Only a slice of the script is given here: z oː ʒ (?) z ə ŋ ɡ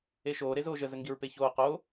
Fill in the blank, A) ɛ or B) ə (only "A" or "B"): B